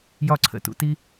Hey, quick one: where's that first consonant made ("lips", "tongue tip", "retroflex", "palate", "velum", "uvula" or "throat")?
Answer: palate